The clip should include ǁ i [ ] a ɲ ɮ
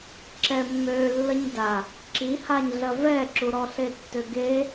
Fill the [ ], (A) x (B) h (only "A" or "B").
B